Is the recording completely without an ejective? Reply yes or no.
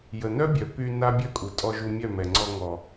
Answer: no